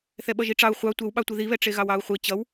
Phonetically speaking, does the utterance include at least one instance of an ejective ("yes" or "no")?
no